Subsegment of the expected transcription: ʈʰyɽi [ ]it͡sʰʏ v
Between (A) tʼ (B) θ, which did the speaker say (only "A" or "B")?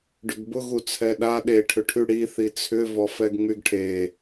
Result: B